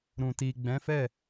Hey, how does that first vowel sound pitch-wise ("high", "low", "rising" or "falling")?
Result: low